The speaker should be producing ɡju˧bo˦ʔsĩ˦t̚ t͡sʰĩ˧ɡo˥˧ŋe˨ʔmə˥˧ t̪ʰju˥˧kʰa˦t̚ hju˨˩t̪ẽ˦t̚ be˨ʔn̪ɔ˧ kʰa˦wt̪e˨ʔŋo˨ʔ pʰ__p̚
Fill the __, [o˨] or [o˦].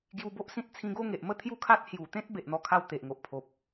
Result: o˨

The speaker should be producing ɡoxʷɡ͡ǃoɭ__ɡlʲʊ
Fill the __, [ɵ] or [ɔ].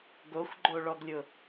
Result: ɔ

